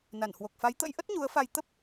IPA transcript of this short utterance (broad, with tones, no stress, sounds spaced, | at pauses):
n a˧˩ n h w o˨˩ k̚ f a˨˦ j t̪ ə̰˧˥ j ʔ ə˦˥ t̚ ɲ u˨˦ ə̯ f a˧ j t̪ ə˦˥ p̚